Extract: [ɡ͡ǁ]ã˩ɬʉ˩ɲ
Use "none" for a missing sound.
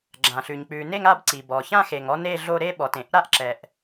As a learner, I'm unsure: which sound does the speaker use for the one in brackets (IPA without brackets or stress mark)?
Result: ɡ͡ǁ